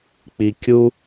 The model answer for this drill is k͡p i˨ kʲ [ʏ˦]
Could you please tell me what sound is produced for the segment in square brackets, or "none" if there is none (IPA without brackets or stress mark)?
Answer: u˦